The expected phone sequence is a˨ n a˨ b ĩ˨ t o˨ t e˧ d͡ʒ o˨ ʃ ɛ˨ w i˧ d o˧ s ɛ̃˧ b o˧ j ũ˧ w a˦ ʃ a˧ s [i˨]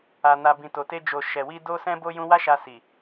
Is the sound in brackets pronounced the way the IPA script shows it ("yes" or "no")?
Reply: yes